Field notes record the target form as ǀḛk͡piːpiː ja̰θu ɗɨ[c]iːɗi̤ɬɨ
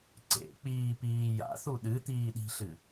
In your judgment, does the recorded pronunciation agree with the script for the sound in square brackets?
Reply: no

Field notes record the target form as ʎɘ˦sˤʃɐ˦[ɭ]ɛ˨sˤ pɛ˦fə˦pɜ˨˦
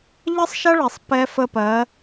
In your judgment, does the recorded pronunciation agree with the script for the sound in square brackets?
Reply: yes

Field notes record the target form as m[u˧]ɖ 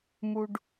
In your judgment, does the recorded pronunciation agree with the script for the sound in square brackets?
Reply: yes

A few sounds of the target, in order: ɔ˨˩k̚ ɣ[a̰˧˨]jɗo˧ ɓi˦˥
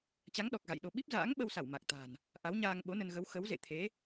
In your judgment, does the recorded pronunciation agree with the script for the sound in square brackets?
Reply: yes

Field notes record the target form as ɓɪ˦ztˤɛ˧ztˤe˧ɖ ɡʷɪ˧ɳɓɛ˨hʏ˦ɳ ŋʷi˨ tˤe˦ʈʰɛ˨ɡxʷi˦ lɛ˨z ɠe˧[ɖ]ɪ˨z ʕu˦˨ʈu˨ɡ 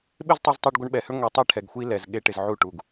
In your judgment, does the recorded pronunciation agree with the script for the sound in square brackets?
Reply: no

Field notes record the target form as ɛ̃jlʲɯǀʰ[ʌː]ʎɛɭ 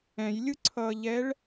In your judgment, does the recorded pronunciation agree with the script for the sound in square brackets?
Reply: yes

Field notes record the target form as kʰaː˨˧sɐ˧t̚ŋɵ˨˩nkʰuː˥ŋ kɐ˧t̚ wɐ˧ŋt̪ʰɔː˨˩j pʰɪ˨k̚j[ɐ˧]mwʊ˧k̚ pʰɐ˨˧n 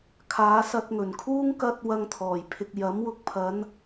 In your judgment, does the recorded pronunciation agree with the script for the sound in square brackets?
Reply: no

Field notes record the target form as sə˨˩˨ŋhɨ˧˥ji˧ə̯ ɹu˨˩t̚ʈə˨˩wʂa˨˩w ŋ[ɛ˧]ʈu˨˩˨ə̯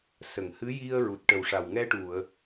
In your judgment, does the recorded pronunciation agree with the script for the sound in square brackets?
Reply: yes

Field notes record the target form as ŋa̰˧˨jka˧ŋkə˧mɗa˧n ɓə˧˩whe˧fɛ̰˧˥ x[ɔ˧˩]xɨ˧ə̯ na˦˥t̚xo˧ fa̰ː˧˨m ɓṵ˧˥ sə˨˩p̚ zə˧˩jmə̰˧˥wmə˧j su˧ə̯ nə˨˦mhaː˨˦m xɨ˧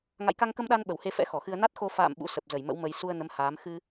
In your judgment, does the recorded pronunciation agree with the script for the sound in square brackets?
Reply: yes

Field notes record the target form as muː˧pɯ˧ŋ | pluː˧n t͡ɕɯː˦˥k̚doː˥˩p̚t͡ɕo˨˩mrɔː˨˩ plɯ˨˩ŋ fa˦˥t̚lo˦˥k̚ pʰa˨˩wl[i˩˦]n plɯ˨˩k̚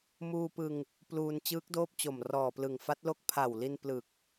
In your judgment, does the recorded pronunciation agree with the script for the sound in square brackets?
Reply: no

